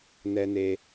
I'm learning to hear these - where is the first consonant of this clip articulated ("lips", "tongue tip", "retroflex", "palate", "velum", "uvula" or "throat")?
tongue tip